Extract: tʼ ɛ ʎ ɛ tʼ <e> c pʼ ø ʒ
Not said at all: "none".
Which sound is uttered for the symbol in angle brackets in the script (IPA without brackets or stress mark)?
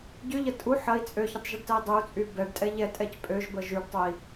ɛ